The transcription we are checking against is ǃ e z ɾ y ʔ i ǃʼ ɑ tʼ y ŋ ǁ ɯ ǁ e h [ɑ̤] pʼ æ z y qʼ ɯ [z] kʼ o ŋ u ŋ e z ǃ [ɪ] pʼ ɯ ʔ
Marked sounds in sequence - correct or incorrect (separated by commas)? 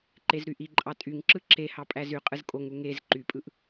incorrect, correct, incorrect